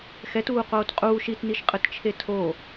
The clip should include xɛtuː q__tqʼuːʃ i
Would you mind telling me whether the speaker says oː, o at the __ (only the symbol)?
oː